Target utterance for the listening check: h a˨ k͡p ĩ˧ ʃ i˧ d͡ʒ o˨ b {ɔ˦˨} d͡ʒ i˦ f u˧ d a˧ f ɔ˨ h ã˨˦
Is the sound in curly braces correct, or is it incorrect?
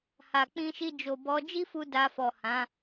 incorrect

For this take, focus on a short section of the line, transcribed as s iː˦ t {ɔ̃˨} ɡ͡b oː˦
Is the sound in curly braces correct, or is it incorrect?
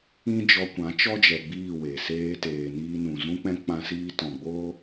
correct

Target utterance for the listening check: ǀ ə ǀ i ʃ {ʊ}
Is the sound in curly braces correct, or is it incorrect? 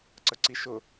correct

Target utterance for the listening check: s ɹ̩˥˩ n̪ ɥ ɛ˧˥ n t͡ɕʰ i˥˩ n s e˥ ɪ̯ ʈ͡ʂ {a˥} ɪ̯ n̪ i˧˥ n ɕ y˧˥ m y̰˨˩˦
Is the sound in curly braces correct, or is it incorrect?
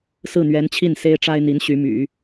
correct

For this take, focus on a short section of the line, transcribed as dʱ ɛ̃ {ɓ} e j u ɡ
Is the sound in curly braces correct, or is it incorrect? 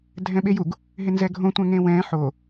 correct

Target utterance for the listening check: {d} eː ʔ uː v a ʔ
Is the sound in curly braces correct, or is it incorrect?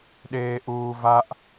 incorrect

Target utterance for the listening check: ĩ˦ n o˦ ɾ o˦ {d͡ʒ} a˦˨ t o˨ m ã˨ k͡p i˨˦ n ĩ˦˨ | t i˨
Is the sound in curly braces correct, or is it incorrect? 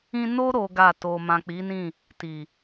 incorrect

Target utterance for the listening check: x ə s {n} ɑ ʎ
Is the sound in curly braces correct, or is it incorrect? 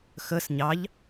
incorrect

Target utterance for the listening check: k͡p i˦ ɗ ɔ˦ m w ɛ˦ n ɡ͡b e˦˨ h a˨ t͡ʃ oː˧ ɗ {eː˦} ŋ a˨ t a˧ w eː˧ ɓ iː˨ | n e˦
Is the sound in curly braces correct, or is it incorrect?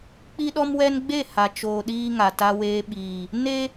incorrect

